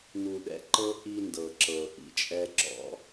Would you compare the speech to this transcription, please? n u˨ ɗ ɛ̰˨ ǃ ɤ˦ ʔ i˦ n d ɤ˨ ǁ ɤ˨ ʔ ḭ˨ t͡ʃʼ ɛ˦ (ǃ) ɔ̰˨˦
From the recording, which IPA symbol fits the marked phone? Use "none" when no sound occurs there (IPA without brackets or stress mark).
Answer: ǁ